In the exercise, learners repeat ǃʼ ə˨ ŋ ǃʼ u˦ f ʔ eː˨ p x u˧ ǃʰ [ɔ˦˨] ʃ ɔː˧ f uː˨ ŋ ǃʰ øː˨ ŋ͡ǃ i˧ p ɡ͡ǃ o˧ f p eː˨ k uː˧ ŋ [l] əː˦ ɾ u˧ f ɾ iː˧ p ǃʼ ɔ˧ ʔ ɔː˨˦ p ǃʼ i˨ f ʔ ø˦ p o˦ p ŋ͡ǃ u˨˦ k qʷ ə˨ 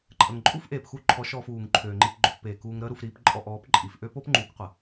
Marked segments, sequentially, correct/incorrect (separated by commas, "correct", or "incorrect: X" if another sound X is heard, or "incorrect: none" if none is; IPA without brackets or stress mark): incorrect: ɔ˨˦, incorrect: ɾ